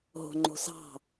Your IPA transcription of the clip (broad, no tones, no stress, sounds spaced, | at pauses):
ɦ o̤ ŋ͡ǃ o̤ s ɑ̤